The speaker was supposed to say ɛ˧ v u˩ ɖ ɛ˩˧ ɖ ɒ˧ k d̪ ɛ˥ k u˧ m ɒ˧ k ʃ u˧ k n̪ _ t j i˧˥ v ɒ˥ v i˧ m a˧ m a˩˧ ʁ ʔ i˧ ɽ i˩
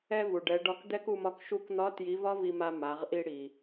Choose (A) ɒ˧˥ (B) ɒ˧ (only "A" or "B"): A